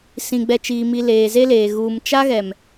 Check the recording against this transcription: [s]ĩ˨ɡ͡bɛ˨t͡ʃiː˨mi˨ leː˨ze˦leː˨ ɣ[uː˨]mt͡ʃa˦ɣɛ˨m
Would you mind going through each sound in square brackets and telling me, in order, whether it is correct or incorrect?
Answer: correct, correct

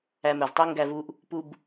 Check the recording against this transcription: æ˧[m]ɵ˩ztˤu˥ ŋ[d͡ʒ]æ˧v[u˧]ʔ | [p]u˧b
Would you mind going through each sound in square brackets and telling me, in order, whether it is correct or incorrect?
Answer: correct, incorrect, correct, correct

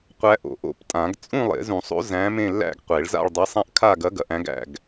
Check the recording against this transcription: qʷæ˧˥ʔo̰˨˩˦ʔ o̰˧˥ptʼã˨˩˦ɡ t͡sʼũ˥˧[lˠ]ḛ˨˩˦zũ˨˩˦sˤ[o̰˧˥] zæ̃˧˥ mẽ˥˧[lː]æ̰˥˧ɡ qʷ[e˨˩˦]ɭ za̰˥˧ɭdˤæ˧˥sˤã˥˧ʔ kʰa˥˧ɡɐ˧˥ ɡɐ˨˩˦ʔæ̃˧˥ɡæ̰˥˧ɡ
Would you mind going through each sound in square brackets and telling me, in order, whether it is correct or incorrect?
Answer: correct, correct, correct, correct

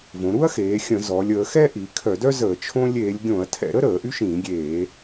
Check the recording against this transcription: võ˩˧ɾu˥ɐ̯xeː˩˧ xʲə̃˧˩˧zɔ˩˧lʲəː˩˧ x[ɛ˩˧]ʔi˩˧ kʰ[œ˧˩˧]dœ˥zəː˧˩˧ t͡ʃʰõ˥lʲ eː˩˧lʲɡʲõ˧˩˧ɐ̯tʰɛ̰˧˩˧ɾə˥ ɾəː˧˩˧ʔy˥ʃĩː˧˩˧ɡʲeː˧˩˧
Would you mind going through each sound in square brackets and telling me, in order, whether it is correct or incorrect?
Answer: incorrect, correct

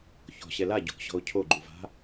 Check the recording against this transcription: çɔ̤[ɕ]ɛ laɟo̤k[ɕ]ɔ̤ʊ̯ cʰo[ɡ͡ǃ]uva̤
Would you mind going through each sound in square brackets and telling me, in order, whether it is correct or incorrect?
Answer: correct, correct, correct

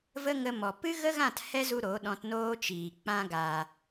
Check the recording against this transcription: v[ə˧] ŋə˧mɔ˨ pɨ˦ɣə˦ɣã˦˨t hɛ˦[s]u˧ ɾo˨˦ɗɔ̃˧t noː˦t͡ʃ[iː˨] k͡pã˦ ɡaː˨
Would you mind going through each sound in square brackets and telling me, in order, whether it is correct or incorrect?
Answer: incorrect, incorrect, correct

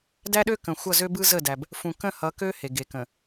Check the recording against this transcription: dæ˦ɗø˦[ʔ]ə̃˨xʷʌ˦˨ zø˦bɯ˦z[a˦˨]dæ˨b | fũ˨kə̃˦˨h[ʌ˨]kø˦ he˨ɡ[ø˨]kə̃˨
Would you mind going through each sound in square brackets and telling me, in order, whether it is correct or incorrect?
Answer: incorrect, incorrect, incorrect, incorrect

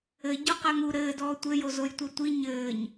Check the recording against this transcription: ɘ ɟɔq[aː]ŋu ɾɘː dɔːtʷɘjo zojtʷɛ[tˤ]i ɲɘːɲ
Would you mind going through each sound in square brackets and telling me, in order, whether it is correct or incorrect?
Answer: incorrect, incorrect

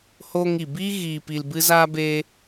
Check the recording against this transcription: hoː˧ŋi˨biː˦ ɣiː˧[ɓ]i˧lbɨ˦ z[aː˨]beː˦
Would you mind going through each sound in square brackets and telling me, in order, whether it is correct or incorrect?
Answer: incorrect, incorrect

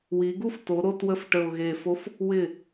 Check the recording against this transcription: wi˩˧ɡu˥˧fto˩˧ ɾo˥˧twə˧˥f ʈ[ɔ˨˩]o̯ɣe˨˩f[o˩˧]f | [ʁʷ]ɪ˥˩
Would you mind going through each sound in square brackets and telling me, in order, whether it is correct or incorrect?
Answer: incorrect, incorrect, incorrect

